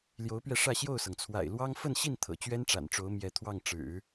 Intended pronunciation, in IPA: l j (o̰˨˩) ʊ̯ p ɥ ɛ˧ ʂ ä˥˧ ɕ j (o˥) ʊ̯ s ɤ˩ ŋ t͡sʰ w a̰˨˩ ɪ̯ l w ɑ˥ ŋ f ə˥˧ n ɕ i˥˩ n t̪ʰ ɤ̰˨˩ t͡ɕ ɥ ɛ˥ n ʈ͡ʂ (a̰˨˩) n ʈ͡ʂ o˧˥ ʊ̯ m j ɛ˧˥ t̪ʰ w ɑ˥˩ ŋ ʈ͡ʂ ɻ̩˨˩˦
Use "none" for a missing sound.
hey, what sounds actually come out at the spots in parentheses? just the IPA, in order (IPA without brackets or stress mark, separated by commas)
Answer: o˧˥, o˥˩, a̰˨˩